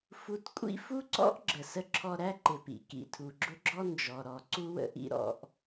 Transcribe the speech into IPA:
f u˧ t kʷʼ ḭ˥ f u˥ ǀ ɔ̰˥ ʔ ɡ͡ǁ ə˩ s ə˧ ǁʰ ɔ˧ ɾ æ˥ ǃ ɪ˩ p ḭ˩ k ḭ˩ tʰ u˩ ɡ͡ǁ ʊ˥ ɡ͡ǁ ɔ˥ n d͡ʒ ɔ˩ ɾ ɔ˩ ǀ u˥ w ə̰˧ ʔ ḭ˥ ɾ ɔ̰˧ ʔ

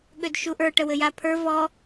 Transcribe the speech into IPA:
ɠ ø d ʃ u ʔ ə˞ ʈ ə w ɘ j a pʰ ə˞ v ɔ

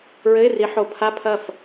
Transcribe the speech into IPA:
ɹ ɘ˧˥˧ ɪ̯ r i˨˦ ħ o˨˦ pʰ a˧˥˧ pʰ ɐ˥˩ f

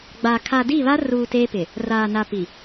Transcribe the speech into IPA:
ɡ͡b a˨ kʰ a˨ d i˦˨ β a˦ r uː˨ t eː˦ p ɪ˨ | r aː˨ n a˨ p i˨

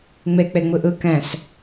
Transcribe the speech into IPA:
ŋ͡m e k͡p e ŋ͡m ɯ ʔ ɯ k ɛ̃ s

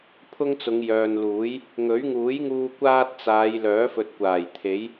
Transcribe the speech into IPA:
pʰ ʊ˥ ŋ t͡s ʊ˨˧ ŋ j œː˨ n l uː˨˥ j | ŋ ɵ˨˥ ɥ ŋ uː˨˥ j ŋ uː˧ kʷ aː˥ t̚ t͡s aː˨˧ j l œː˨˥ f ɵ˨ t̚ kʷ aː˨˩ j t̪ʰ e˨˥ j

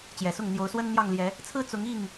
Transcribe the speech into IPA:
t͡ɕ j ɛ˨˩ s ʊ˥˨ ŋ n̪ j o˨˦ ʊ̯ s w ə˦ n n̪ j ɑ˥˨ ŋ l j ɛ˨˦ | t͡sʰ ɹ̩˦ t͡s ʊ˨˦ ŋ i˥˨ ŋ

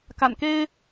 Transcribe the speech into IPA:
k a̰˨˩ n k e˥ ɪ̯

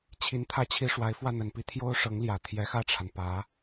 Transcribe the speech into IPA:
t͡ɕʰ i˧˥ n t̪ʰ ä˥ t͡ɕʰ i˥ ʂ w a˧˥ ɪ̯ f w ä˥˩ n̪ ə˨˩ n p i˥ t̪ʰ j o˥ ʊ̯ ʂ ɤ˧˥ ŋ l j ä˨˩ t̪ʰ j ɛ˧˥ x ä˥˩ ʈ͡ʂʰ a˩ n p ä˧˥

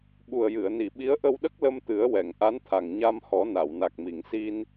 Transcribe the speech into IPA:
ɓ u˨˩ ə̯ j ɨ˨˩˨ ə̯ n i˨˩˨ ɓ i˧˥ ə̯ ʔ ə˧ w ɗ ə˦˥ k̚ l ə˧ m t̪ ɨ˨˩˦ ə̯ w ɛ˨˩˨ ŋ ʔ a˧˥ n t̪ʰ a˨˩ ŋ ɲ a˧ m h ɔ˨˩˦ n a˨˩˨ w n a˨˩ k̚ m i˨˩˨ ŋ s i˧ n

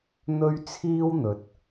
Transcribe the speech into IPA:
n̪ ɵ˥ ɥ t͡sʰ iː˥ w n̪ ɵ˨˥ t̚

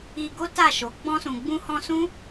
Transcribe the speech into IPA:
i˧ ɡ o˦ t a˦˨ ʃ o˨˦ ɡ͡b ɔ̃˧ s ũ˨ ɡ͡b ũ˧ h ɔ̃˧ s ũ˦

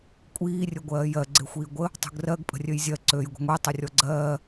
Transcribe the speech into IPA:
kʷʼ iː rʲ ɵ ɡʷ ɜː j ɜ ɡ͡ǀ e xʷ iː ɡʷ ə | tˤ ṳ ɡ r ɜ ɡ pʼ ə̤ rʲ ø j zʲ ɜ ǀ ø j ɡʷ ə̤ ŋʷ e tˤ ə rʲ ɔ ɡ͡ǀ ɜː

